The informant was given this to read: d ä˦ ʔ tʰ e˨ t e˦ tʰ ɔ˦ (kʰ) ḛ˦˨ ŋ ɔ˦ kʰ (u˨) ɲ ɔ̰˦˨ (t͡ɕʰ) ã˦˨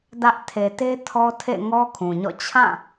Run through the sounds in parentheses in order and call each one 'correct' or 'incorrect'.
incorrect, incorrect, correct

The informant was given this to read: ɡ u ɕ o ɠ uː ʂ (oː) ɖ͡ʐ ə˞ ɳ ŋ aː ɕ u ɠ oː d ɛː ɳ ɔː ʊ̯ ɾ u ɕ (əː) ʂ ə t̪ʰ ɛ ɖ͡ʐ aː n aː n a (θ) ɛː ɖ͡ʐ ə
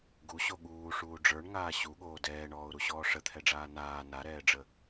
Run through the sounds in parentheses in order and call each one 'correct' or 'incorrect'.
incorrect, incorrect, incorrect

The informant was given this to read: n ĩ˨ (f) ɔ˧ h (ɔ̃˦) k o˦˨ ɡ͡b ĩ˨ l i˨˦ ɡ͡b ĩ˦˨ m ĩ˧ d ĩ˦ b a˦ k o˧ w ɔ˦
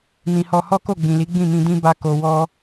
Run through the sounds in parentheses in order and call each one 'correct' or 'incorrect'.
incorrect, incorrect

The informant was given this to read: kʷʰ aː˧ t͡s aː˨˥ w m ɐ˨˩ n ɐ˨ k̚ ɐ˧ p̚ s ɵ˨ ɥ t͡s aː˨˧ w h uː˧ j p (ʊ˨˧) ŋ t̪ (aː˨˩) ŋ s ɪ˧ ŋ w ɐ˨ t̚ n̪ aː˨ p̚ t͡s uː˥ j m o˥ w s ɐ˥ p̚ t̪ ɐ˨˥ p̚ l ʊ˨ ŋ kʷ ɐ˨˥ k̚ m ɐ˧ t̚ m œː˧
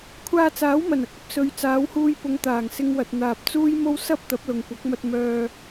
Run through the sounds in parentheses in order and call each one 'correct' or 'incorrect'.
correct, correct

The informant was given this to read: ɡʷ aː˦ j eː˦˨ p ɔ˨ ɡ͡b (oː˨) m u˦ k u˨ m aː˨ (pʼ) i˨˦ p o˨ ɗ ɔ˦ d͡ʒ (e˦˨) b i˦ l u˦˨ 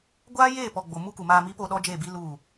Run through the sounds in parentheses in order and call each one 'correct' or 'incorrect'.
incorrect, incorrect, correct

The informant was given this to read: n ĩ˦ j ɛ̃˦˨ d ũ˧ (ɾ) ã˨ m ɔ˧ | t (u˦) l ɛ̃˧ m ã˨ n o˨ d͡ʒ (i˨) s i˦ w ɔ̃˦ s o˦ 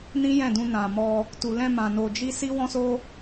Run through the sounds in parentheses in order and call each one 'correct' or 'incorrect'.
incorrect, incorrect, incorrect

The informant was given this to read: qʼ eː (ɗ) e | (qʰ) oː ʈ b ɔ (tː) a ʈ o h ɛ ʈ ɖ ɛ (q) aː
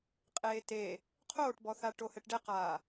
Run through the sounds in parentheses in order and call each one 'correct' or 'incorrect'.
incorrect, correct, incorrect, correct

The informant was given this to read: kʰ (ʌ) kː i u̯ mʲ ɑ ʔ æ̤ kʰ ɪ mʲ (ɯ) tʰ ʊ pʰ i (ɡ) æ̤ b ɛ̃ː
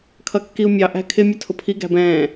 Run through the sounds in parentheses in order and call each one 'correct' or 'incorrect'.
correct, incorrect, correct

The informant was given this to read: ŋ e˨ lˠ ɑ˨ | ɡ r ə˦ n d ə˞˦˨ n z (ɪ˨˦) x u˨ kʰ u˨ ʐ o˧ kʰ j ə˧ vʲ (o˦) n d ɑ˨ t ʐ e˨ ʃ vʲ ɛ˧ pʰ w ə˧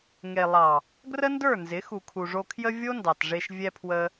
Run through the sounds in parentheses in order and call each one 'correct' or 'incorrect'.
correct, correct

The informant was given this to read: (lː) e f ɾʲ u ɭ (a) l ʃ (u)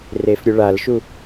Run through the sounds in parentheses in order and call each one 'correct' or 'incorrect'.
incorrect, correct, correct

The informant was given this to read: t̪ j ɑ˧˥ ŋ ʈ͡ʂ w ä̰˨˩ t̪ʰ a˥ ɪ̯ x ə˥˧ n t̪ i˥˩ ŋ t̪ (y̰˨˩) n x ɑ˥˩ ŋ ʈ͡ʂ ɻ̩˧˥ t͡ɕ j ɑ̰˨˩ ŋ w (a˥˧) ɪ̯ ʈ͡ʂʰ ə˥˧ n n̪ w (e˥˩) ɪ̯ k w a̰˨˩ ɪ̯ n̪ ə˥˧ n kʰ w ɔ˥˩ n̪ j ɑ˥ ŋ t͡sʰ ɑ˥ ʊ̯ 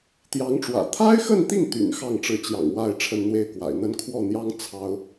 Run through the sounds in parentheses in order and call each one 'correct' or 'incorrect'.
correct, correct, correct

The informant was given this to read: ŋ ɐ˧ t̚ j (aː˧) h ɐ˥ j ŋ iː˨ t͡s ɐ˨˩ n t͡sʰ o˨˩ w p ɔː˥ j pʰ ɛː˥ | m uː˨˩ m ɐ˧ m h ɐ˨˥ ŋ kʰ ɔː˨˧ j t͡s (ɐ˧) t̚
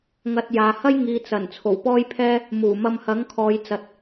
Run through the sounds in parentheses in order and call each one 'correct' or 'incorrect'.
incorrect, incorrect

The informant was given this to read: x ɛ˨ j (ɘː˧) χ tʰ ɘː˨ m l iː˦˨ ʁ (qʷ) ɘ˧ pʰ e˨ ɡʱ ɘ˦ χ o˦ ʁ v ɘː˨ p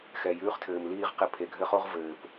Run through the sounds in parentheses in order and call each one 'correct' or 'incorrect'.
incorrect, incorrect

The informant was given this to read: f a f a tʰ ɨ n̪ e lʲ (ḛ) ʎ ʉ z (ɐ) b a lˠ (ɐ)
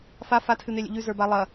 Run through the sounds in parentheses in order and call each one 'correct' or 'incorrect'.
correct, incorrect, correct

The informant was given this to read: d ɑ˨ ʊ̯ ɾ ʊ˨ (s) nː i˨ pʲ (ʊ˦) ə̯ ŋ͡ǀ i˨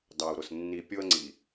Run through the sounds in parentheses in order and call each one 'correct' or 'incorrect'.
correct, correct

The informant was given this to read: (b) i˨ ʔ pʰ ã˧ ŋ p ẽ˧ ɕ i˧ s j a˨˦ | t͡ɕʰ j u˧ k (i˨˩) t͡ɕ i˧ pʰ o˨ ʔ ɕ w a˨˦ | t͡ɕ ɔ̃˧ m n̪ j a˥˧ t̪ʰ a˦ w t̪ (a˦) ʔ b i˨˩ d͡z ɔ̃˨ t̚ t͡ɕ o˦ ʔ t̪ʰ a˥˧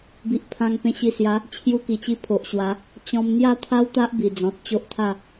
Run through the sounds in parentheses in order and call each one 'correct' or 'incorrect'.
correct, correct, correct

